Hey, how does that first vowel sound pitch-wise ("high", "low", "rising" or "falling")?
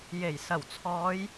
low